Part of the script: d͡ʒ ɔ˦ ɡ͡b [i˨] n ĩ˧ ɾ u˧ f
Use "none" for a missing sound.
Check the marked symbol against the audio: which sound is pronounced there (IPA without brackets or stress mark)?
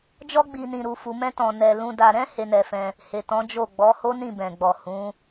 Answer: i˧